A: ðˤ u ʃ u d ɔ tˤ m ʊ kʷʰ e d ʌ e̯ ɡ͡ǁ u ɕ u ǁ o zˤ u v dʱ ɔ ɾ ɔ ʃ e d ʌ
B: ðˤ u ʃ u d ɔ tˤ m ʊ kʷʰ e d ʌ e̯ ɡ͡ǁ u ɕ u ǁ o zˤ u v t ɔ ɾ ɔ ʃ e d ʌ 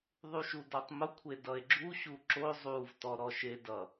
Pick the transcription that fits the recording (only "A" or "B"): B